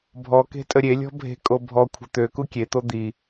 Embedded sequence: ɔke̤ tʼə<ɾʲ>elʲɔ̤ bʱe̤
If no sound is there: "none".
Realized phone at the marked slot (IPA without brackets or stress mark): ɾʲ